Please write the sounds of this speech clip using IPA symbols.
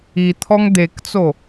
i t̪ʰ ɔ ŋ d̪ e k t͡s o

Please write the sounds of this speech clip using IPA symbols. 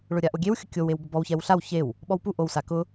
ɭ ʊ ɾʲ a ʔ o ɡʲ e w xʲ ʊ kʲ o w e w b ʊ b ɔ w ç ɛ w ɬ a w ç e w | ɓ ɔ w p u ʔ o w s a k ʊ

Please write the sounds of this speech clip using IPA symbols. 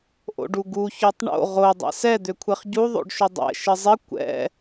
ʔ o̰ ɖ u ɡ u ç ø tˤ ɳ o̰ ʁ o dˤ ɛ̰ s ɛ d̪ ø kʷʰ ɛ χ ɟ u ðˤ o̰ ɖ ʃ ʏ dˤ ɛ̰ ʃ ɪ zˤ ɪ kʷ ɛ̰

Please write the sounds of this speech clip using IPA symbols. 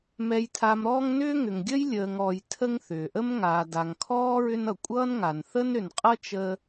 m ɛ˨ j tʰ a˨ m ɾ ɔː˦ ŋ n ʏː˥ ŋ ʏ˩ ŋ ɡʲ ə˥ j lʲ əː˨ ŋ ɔ˨ j tʰ ə˦ ŋ θ ʏː˩ ʔ ə˥ m ŋ aː˨ d a˨ ŋ kʰ ɔː˥ ɹ ʏ˦ n ʌ˩ kʷʼ ʌː˥ n ŋ a˩ n θ ə˥ n ɾ ʏ˨ n qʼ ʌ˥ t͡ʃ ə˥

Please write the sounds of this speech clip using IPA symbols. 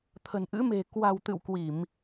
t̪ʰ ə̤˨˩ n ʔ ɨ̰˧˥ m e̤˨˩ k w a̤˨˩ w t̪ ɨ̰˧˨ w k w i˧˩˨ m

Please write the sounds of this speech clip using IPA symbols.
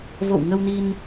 v o̰˧˨ w ŋ ə˧ w n i˧ n

